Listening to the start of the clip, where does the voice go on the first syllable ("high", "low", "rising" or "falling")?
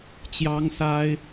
high